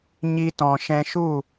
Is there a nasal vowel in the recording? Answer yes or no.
yes